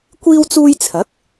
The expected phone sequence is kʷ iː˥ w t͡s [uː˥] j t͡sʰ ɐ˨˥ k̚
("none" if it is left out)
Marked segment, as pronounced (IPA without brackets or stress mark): uː˥